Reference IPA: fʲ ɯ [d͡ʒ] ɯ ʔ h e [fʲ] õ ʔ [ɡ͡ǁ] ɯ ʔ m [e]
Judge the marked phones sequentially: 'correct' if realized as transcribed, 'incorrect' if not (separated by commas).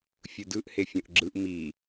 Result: incorrect, correct, correct, incorrect